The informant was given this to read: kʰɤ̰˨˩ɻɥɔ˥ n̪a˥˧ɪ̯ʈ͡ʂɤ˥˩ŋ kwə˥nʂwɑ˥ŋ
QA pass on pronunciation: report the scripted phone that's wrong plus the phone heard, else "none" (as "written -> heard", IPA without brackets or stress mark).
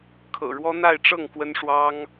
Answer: ɥ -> w